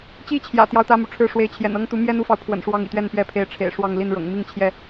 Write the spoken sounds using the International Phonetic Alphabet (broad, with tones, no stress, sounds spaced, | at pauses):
t͡ɕ i˦ t͡ɕʰ j ä̰˨˩ t̪ j ɑ˦ ʊ̯ t̪ ä˦ m u˨ ʈ͡ʂʰ ɻ̩˥˨ ʂ w e˨˦ ɪ̯ t͡ɕʰ j ɛ̰˨˩ n ɤ˦ ŋ t̪ u˨˦ m j ɛ˦ n u˦ f ɑ˨ ʊ̯ pʰ w ə̰˨˩ n ʂ w ɑ˦ ŋ ḭ˨˩ t̪ ɥ ɛ˥˨ n p ɥ ɛ˥˨ pʰ e˨˦ ɪ̯ ʈ͡ʂʰ ḛ˨˩ ɪ̯ ʂ w ɑ˥˨ ŋ l i˥˨ n ɻ ɤ̰˨˩ ŋ m i˥˨ ŋ t͡ɕʰ j ɛ˥˨